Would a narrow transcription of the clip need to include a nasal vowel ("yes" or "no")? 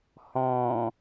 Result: yes